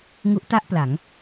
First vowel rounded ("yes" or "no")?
yes